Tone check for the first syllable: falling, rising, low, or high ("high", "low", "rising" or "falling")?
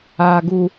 low